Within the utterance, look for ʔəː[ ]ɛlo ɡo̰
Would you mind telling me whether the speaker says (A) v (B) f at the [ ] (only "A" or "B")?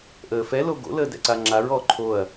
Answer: B